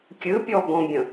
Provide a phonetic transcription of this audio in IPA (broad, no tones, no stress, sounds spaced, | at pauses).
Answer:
kʲ ɨ pʲ ɔ ɡ ɔ̃ bʲ ə̃